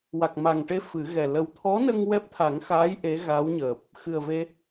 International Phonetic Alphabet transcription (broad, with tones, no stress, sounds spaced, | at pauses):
w a˨˩ k̚ m a˨˩ ŋ ʈ e˧ f ɨ˨˩˦ ɣ ɛ˨˩ l ə˧ w t̪ʰ ɔ˧˥ n ə˧ ŋ w ɛ˦˥ p̚ t̪ʰ a˨˩˦ ŋ x aː˧˥ j ʔ e˧˥ ɣ a˧˥ w ɲ əː˨˩ p̚ | x ɨ˨˩ ə̯ v e˧